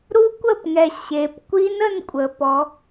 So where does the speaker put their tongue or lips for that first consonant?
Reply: tongue tip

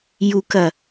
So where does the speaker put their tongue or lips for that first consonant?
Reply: palate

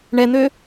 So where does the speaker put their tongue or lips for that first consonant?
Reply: retroflex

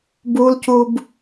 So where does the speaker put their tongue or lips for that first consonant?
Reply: lips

